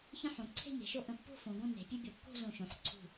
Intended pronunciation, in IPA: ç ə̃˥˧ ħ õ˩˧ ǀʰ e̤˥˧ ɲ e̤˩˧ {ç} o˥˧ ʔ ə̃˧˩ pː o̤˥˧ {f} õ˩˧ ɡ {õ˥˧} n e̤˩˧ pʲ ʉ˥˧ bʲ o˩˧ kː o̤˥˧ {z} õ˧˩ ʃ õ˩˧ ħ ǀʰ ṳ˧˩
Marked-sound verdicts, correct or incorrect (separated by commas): incorrect, correct, correct, correct